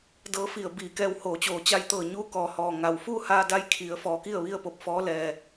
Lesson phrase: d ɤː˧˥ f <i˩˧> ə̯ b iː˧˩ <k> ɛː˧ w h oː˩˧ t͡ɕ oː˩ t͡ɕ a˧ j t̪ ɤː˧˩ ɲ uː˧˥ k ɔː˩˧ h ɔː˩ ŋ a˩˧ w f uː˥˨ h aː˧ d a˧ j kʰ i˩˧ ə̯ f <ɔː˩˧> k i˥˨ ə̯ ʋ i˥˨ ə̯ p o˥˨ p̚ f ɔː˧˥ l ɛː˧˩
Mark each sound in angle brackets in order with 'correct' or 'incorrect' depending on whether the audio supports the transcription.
incorrect, correct, correct

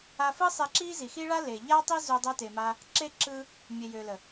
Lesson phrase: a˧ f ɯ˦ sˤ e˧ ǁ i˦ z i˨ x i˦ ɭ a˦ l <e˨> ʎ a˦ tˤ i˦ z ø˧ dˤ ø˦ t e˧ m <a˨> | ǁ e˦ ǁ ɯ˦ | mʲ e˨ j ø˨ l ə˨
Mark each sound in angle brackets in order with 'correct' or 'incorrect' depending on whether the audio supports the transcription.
correct, incorrect

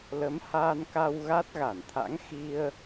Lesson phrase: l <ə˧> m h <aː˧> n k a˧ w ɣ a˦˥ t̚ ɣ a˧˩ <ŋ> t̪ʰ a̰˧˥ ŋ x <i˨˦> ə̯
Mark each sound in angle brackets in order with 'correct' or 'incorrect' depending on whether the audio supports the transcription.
incorrect, correct, incorrect, incorrect

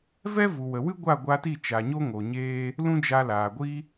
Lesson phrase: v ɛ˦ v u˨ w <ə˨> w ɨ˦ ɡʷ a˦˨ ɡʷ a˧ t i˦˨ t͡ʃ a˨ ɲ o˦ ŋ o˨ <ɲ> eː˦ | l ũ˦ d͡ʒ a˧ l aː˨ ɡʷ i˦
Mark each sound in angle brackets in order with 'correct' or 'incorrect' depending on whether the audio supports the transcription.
correct, correct

